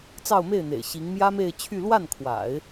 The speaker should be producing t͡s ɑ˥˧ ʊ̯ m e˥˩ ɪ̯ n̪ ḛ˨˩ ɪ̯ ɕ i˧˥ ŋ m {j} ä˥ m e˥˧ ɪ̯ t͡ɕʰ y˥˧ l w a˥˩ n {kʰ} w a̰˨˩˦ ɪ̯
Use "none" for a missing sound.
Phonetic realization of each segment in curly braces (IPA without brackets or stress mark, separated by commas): j, kʰ